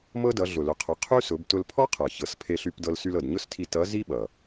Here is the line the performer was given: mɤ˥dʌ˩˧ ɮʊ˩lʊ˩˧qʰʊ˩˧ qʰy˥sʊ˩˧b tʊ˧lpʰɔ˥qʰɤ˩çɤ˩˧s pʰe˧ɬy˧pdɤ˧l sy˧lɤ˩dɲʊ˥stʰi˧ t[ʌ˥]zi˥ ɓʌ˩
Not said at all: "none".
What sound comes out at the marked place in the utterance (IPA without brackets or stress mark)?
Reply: ʌ˧˥